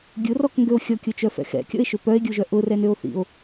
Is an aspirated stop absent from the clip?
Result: yes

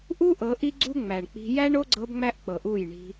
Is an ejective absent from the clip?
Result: yes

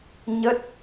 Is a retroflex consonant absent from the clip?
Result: yes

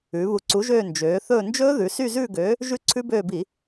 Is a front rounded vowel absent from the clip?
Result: no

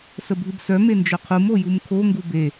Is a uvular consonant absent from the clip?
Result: no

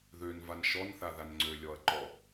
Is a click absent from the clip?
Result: no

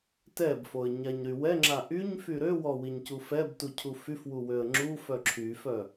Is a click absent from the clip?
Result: no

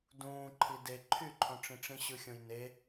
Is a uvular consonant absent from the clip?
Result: yes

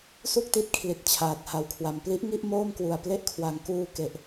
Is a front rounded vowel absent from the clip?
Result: yes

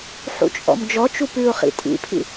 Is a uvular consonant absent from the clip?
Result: no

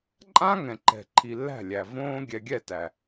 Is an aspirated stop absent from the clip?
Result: no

